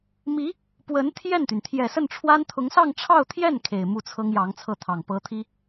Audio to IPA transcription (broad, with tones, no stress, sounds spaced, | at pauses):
m i˧˥ | p w ə˧˥ n t̪ʰ j ɛ˥˩ n t̪ y˩ n t̪ʰ j ɛ˨˩ s ə˥˩ n ʈ͡ʂʰ w a˥ n t̪ʰ ʊ˧˥ ŋ s ɑ˥˧ ŋ ʈ͡ʂʰ ɑ˥˧ ʊ̯ t̪ʰ j ɛ˥˩ n kʰ e˨˩ ɪ̯ m u˥˩ t͡sʰ ɤ˥ ŋ j ɑ˧˥ ŋ t͡sʰ ɤ˥˩ t̪ʰ ɑ˨˩ ŋ p ɤ˥ t̪ʰ i˥